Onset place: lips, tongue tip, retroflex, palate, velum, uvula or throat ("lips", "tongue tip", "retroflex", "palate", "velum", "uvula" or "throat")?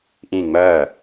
throat